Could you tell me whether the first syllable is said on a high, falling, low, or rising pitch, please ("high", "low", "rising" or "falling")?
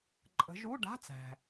rising